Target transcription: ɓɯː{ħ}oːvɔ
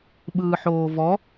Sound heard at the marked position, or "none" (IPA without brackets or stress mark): ħ